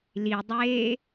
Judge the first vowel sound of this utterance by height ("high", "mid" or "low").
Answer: high